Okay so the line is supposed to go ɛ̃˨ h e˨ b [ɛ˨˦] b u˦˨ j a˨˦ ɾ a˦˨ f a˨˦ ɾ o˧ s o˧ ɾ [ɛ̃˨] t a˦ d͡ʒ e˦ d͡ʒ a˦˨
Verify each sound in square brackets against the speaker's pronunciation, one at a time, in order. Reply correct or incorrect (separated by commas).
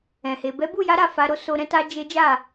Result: correct, incorrect